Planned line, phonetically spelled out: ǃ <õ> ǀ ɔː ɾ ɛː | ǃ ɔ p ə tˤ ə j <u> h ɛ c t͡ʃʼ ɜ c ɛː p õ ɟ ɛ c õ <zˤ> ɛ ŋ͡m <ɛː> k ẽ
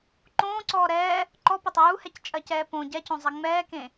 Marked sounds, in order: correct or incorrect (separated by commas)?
incorrect, correct, correct, correct